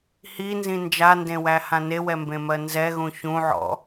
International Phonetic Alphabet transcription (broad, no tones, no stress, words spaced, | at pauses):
hinzĩ nd͡ʒandẽwæhã newɛmbẽmɜ nzɛɣũ çũʕɔ̰